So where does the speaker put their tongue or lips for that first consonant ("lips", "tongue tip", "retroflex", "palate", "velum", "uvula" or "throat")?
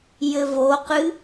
palate